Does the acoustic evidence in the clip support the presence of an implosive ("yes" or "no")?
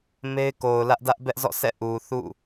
no